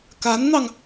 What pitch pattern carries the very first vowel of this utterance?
rising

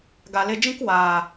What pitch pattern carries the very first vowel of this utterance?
low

